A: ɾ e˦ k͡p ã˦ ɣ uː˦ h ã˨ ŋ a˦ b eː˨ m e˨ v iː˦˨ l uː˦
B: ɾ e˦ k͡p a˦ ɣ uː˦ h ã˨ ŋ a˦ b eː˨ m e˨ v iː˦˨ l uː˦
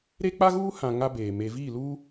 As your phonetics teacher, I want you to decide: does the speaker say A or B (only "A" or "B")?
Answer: B